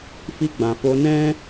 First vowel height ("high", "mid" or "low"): high